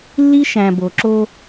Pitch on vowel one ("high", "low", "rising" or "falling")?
high